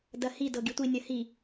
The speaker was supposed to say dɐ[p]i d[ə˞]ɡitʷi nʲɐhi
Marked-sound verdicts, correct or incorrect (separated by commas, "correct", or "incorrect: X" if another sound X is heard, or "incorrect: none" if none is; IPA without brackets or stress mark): incorrect: h, incorrect: ɤ